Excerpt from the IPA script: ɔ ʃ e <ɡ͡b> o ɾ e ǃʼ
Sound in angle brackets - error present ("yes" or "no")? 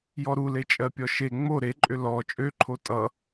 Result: yes